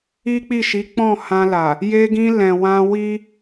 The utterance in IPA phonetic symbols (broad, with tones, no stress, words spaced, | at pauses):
i˦k͡pi˦˨ʃi˨˦ k͡pɔ̃˦˨hã˧la˨ | je˧ɡĩ˧ lɛ̃˨wã˧ wi˦